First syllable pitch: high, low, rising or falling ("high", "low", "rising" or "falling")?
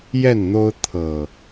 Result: falling